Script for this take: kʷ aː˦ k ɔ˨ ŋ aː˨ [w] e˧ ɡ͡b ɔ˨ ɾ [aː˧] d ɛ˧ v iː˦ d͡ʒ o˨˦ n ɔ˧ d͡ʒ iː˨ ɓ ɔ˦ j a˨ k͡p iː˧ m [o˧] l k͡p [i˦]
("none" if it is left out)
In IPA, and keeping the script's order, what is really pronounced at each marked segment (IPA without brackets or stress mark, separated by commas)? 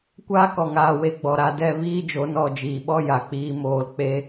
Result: w, a˧, oː˧, e˦